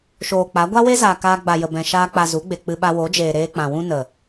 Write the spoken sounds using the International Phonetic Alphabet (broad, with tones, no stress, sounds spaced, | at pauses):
ʃ oː˨ k͡p a˨˦ ɡʷ a˦ w e˦ z aː˨ k aː˧ ɡ͡b a˨ j ə˨ b ɛ̃˨ ʃ aː˧ k͡p a˨ z u˨˦ ɡ͡b e˨ k͡p ɨ˧ ɓ a˧ w o˨˦ d͡ʒ eː˨ ɾ eː˧ k͡p ã˨ w ũ˦ n ə˨